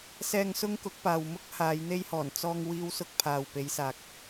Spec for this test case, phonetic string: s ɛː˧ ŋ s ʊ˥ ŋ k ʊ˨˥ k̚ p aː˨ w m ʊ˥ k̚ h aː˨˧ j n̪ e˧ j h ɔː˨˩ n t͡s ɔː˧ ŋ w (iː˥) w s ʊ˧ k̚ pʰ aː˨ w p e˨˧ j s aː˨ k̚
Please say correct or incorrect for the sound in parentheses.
incorrect